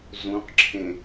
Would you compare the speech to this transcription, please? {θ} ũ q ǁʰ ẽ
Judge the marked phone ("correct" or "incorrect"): incorrect